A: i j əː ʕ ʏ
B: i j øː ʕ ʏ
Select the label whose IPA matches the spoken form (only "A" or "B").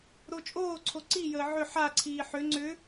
A